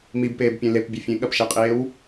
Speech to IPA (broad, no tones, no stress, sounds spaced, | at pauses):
m i b p eː b pʲ ẽ l e p bʲ ɘ fʲ ẽ ɠ ɐ p ʃ ɛ qʼ eː w